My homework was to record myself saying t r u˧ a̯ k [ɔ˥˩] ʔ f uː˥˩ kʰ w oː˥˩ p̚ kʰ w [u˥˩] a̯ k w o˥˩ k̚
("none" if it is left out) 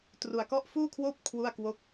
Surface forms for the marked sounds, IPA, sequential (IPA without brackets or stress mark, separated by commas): ɔ˥˩, u˥˩